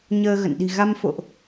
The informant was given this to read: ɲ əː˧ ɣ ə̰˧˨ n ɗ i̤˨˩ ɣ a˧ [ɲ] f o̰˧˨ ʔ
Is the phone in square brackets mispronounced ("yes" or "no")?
yes